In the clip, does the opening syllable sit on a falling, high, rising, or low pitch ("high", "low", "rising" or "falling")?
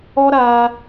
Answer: high